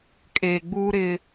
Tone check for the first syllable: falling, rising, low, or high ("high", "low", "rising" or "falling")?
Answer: low